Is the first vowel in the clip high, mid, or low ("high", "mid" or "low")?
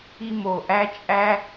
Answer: high